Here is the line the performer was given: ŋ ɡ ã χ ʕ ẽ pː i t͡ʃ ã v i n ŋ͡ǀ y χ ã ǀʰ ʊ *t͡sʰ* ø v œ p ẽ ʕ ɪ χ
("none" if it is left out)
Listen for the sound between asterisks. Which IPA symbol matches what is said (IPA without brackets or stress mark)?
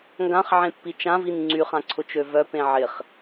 t͡ʃ